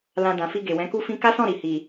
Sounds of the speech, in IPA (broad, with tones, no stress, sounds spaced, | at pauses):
l ã˧ d ã˨ f i˧ ɡ e˨ w ɛ̃˨˦ k u˦ f ĩ˦ k a˦ s ɔ̃˦˨ ɾ i˨ h i˨